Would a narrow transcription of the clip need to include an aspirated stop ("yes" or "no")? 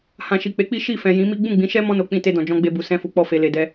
no